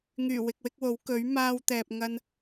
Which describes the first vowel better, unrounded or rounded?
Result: rounded